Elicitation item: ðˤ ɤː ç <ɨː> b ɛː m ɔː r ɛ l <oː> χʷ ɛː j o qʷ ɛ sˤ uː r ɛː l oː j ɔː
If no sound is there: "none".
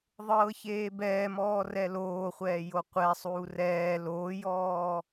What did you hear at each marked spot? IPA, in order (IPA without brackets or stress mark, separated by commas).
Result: eː, oː